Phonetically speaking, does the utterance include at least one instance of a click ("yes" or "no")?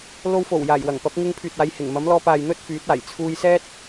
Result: no